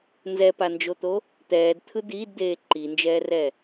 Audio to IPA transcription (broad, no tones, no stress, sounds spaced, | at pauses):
n z ɛ p a n d͡ʒ o t̪ o | t̪ ɛː d t̪ʰ ɯ d̪ iː d d̪ eː ǃ i n d͡ʒ ɛː r ɛ